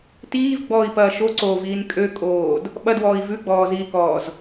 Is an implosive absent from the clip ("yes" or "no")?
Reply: no